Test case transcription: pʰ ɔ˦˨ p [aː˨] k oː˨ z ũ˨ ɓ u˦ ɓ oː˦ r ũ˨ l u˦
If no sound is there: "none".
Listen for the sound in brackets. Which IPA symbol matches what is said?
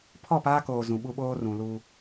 aː˦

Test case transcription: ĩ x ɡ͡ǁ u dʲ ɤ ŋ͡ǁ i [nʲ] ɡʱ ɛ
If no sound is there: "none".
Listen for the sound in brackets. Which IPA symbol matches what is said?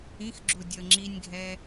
nʲ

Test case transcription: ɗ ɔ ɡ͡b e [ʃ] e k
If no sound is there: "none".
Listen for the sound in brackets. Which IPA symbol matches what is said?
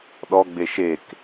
ʃ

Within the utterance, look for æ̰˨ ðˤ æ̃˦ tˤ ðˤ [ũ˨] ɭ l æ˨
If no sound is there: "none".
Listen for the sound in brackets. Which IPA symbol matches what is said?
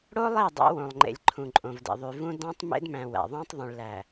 ũ˨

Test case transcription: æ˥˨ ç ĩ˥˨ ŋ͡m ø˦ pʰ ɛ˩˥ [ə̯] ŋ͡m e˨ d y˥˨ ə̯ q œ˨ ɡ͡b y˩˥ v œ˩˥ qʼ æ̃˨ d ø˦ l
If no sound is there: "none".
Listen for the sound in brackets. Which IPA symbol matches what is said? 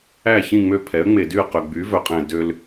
ə̯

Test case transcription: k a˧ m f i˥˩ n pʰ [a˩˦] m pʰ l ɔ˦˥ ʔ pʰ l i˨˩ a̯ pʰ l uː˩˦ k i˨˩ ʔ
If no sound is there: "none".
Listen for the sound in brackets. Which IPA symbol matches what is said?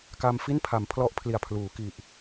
a˩˦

